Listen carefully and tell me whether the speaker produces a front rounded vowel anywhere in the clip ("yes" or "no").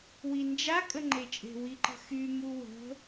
yes